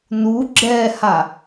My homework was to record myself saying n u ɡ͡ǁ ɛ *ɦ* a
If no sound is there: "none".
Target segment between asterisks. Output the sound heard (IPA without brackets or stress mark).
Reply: h